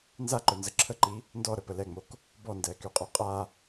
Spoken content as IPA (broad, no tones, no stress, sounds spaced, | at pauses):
n z a ǃ œ n z ə ǁʰ ə ǃ i | n d ɔ ɾ ə p ə l ɛ ŋ͡m o k | b ɔ n d ɛː k y qʼ o qʼ a